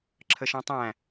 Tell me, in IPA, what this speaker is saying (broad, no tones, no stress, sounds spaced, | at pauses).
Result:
ǁʰ ə ʃ ɔ̃ tˤ æ̃